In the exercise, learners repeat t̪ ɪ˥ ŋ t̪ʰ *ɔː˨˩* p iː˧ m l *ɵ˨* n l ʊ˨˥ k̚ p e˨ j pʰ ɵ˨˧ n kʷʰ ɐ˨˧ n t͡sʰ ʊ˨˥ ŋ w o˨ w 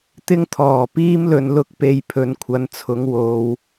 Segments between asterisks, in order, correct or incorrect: correct, correct

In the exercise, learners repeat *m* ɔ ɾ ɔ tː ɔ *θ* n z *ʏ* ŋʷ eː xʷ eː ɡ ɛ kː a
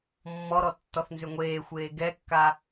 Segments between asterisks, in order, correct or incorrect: incorrect: mː, correct, correct

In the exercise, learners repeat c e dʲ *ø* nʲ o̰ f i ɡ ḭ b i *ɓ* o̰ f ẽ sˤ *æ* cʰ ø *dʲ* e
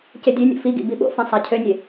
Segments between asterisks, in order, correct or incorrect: correct, correct, correct, incorrect: nʲ

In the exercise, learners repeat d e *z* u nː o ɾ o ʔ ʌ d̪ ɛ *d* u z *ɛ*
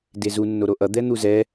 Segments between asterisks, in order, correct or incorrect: correct, incorrect: n̪, correct

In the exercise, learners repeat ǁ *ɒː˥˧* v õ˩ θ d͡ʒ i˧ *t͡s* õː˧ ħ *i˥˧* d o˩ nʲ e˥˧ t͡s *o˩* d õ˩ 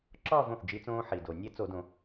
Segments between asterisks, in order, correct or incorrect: correct, correct, incorrect: i˩, incorrect: o˧˩˧

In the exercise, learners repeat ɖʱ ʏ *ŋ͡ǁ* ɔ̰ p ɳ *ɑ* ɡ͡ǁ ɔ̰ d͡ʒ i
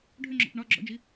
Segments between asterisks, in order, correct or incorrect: correct, incorrect: ɒ

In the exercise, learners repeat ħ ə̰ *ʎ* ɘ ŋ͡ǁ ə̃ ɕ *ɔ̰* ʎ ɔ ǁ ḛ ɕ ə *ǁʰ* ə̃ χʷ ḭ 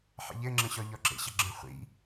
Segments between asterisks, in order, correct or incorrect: correct, incorrect: ɔ, incorrect: ɡ͡ǁ

